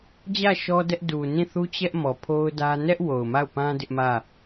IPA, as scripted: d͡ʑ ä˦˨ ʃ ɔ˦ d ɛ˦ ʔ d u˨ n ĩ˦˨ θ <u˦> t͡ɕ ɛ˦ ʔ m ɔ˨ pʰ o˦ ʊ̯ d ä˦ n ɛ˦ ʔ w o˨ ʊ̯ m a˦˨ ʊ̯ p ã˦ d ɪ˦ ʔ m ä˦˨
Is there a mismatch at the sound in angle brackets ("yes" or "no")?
no